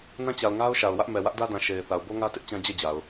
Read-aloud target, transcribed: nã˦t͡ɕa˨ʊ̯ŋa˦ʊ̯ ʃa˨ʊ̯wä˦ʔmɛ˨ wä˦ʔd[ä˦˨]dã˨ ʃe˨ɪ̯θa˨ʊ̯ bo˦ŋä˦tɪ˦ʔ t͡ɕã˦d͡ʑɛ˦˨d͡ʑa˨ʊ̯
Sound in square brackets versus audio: incorrect: ä˦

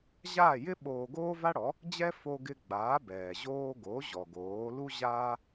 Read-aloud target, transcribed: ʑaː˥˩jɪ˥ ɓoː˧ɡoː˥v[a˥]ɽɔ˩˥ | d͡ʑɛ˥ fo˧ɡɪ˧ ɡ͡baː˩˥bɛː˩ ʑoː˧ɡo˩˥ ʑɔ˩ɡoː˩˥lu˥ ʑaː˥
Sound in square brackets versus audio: correct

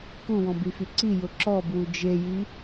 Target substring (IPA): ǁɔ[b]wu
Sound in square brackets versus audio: correct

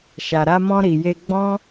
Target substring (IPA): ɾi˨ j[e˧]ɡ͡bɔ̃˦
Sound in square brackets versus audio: correct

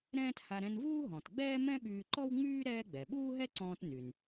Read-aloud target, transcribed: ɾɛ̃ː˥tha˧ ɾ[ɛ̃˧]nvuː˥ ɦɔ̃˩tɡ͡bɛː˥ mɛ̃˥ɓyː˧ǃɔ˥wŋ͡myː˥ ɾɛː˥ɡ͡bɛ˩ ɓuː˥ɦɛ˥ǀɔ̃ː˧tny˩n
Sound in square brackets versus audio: correct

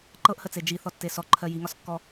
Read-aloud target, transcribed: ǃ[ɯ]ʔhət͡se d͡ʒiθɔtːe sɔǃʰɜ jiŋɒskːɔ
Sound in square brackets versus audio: incorrect: ɤ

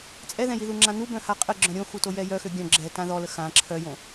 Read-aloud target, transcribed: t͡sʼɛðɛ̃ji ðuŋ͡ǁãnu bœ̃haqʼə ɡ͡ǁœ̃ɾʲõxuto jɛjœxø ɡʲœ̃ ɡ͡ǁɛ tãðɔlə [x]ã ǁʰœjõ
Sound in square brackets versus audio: correct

